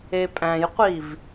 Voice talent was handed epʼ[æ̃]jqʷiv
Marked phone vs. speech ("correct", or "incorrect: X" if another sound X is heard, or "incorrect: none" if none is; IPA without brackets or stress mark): correct